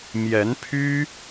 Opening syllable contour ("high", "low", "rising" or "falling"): rising